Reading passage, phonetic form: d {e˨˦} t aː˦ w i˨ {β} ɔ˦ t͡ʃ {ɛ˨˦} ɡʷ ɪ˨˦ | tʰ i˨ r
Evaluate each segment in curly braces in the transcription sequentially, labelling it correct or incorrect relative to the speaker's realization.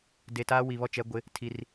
incorrect: e˨, correct, correct

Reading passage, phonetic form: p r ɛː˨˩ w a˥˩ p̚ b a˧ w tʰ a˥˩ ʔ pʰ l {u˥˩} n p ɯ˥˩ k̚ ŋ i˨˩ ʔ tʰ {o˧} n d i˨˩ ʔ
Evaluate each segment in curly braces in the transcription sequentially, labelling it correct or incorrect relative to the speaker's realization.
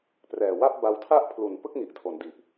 incorrect: u˨˩, incorrect: o˩˦

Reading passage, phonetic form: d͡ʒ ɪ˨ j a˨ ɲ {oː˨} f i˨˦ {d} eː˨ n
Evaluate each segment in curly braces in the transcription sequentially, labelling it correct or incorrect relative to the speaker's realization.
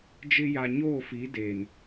incorrect: oː˦˨, correct

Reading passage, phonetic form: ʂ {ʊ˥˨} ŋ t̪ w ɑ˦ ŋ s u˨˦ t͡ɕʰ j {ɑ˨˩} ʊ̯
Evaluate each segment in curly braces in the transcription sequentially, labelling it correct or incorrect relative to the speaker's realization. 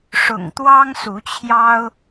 incorrect: ʊ̰˨˩, incorrect: ɑ˦

